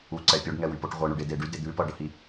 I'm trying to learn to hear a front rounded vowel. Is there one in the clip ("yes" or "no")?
yes